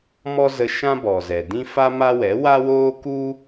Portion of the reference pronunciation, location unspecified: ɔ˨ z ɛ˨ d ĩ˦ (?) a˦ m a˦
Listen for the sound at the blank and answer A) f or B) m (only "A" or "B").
A